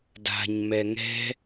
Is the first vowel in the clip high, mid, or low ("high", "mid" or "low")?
low